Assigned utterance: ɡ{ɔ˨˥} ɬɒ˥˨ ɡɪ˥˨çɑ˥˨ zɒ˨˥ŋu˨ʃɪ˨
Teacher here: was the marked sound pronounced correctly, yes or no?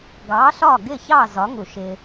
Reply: no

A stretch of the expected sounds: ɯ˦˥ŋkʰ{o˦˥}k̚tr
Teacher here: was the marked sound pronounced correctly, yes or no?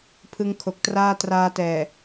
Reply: no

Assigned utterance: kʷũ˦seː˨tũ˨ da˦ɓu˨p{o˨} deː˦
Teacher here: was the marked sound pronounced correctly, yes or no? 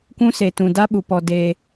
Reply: no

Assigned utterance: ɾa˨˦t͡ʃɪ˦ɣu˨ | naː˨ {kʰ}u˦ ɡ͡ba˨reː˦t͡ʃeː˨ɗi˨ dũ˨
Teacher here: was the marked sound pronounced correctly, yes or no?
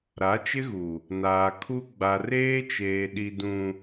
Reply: yes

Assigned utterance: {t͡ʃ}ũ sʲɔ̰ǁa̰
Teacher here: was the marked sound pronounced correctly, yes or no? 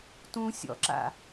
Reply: no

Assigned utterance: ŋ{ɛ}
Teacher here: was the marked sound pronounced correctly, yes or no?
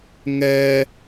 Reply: yes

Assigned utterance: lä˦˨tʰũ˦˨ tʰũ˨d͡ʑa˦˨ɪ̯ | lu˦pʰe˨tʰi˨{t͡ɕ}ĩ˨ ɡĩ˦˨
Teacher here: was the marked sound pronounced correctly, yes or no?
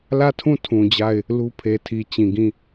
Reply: yes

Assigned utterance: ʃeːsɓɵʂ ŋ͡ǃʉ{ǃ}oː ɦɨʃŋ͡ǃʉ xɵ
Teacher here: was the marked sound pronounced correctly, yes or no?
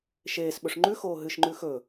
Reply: no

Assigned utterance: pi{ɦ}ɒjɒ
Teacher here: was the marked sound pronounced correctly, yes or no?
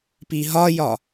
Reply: yes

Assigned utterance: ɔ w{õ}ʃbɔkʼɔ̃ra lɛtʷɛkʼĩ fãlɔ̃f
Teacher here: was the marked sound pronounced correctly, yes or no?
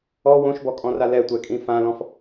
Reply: yes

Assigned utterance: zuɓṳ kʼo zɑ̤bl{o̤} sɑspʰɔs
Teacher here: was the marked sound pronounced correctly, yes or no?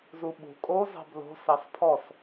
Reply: yes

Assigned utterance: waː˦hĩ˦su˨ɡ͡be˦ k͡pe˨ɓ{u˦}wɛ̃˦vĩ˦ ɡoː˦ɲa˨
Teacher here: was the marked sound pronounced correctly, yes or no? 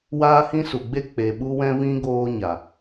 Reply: yes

